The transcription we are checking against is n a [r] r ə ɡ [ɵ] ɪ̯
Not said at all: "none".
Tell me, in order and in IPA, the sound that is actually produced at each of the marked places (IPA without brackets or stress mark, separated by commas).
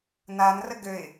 n, ø